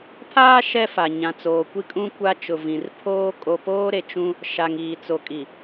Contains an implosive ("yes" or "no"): no